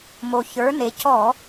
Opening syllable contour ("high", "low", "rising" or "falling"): low